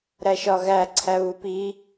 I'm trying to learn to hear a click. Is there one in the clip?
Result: yes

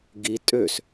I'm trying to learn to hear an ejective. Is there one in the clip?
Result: yes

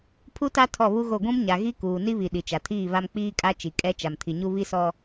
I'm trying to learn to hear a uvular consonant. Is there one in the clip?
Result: no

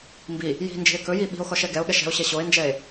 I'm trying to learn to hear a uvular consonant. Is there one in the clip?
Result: no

